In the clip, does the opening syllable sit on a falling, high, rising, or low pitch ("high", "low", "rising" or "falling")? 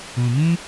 low